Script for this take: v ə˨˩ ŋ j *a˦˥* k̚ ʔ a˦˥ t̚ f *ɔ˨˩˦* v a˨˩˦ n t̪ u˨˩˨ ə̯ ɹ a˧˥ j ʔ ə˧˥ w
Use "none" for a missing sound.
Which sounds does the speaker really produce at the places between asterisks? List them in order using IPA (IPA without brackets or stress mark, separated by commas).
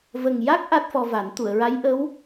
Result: a˦˥, ɔ˧